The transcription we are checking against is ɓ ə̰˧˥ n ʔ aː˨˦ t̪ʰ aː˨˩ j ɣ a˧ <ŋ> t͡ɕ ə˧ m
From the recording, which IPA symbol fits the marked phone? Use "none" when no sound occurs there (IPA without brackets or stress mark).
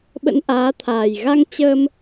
ŋ